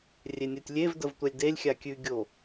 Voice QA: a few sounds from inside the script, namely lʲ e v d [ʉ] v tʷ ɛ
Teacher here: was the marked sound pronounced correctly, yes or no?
no